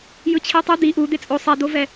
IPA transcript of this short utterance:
j ɯ t͡ɕʰ i tˤ ɯ d̪ i ʔ u d̪ e t͡sʼ o sˤ ɛ d̪ o v ɛ

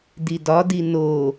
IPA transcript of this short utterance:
d i d ɒ d i n o

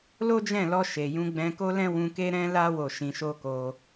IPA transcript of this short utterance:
l o˦ d͡ʒ ɛ̃˦˨ l ɔ˧ ʃ e˨ j ũ˧ ɡ͡b ɛ̃˧ k o˦ l ɛ̃˦ w ũ˧ k e˦ ɾ ɛ̃˦ l a˦ w o˦˨ ʃ ĩ˧ ʃ o˦ k o˧

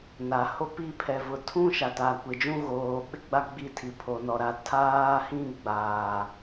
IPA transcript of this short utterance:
n a˨ h o˦ p i˦˨ pʰ ɛ˨ v ʊ˨ tʰ ũ˦ ʃ a˨ t a˨ kʷ ɪ˨ d͡ʒ ũ˦ ɣ oː˨ ɓ ɪ˦ ɡ͡b a˦ ɡ͡b i˦˨ tʰ i˨ pʰ o˨ n ɔ˨ ɾ a˨ tʰ aː˦ h ĩ˦ ɡ͡b aː˨

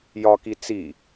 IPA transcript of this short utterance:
j ɒ k i t͡s i

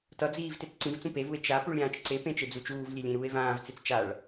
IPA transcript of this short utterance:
t ʌ d͡z iː v t e t͡s ǀ ĩ v t͡s ũ p e v u e̯ t͡ʃ a p u ɭ ɾʲ ãː t͡ʃ ǀ e p ẽ t͡ʃ e d͡z u t͡ʃ uː v lʲ e lʲ ẽ ɾ uː e̯ v ãː v t͡s e t͡s t͡ʃ a ɭ

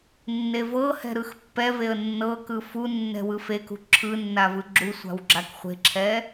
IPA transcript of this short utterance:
nː e v ɤ h ɛ̤ ɾ ɯ x pː ɛ v e ə̯ nː ɤ k ɯ f u nː ɛ̤ w ɯ f e k ṳ ǁʰ ɯ nː a v ɯ ɡ͡ǁ u sʷ a̤ w ɡ͡ǁ a k χʷ e̤ ǁʰ ɛ

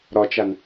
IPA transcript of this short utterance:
ɾ ɒ t͡ʃ a n

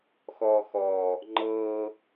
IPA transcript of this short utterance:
x ɔ x ɔ | ŋ͡ǃ ɤ

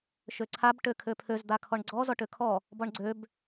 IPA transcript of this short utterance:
ʃ ø ǀʰ a b ʈ ø kʰ ø pʰ ø z d̪ a kʰ ɔ ɳ ɡ͡ǀ ɔ z ɔ ʈ ø kʰ ɔ | b ɔ ɳ ɡ͡ǀ ø b

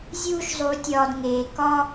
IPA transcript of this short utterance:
zʲ uː˦ ʃ zˤ u˨˦ tʲ ɒː˨ d ŋ eː˨ k ɒː˦

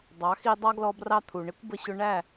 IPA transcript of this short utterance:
dˤ ɑ˨˦ x i˧ dˤ ɑ˦ ɡ l ɔ˧ b r ɑ˧ t̪ʰ u˨ ɳ ɪ˦ kʷ b ə˧ ɕ ʊ˧ ɳ æ˦˨

